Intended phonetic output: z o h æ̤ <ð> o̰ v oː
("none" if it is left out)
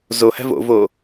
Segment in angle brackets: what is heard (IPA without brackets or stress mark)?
v